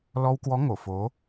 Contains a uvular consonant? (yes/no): no